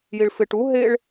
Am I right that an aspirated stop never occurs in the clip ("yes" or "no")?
yes